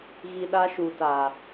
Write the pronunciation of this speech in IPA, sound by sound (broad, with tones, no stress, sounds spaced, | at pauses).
ɣ i˨ ɗ a˦ ʃ u˨ t a˨